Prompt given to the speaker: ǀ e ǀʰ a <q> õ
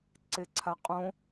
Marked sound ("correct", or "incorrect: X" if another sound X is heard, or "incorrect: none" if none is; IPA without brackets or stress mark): incorrect: qʼ